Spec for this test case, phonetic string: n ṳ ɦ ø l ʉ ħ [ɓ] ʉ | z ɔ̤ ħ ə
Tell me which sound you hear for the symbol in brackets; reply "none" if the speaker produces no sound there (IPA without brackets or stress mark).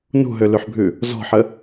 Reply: bʱ